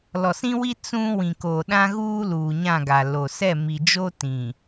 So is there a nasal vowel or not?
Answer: yes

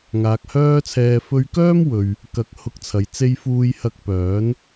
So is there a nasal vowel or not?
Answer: no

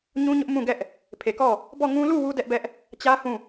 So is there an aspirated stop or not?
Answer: yes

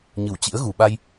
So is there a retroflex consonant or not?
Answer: no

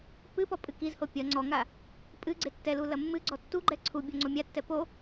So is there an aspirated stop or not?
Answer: yes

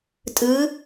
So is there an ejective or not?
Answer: yes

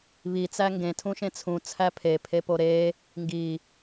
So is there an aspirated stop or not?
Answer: yes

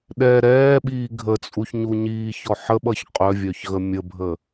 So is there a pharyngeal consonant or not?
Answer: yes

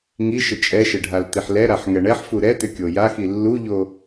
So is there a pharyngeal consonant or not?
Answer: yes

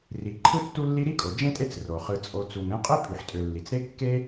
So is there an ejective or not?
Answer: yes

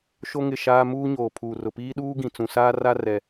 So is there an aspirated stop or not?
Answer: yes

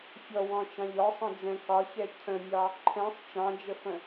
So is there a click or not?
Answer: yes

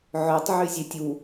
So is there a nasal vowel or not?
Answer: no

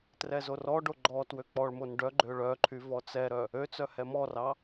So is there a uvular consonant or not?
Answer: no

